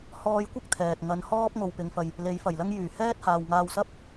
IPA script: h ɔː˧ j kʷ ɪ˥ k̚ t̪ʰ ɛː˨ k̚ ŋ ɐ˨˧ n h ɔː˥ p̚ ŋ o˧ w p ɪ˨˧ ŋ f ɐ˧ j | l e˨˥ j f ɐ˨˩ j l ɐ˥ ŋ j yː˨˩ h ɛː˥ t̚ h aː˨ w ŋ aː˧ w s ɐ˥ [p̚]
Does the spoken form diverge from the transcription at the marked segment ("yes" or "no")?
no